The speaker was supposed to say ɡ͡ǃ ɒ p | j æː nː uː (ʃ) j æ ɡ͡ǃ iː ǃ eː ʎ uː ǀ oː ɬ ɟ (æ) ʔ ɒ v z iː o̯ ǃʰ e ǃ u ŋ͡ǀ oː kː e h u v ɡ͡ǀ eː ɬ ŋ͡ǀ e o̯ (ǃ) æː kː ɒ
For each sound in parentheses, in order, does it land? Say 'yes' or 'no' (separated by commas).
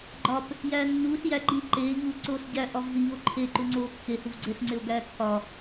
no, yes, no